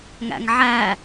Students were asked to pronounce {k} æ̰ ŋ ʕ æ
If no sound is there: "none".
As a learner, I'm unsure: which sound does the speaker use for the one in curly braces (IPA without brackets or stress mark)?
ŋ